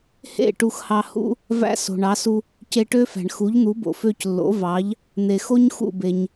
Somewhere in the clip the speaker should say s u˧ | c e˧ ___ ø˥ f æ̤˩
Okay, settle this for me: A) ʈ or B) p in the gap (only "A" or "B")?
A